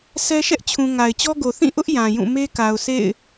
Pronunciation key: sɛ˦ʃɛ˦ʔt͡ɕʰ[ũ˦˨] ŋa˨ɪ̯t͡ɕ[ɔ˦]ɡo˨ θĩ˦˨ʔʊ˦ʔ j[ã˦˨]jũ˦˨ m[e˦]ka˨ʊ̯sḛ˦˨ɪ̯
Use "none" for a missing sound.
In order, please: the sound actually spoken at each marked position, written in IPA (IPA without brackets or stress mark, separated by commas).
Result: ũ˨, ɔ˦, ã˨, e˦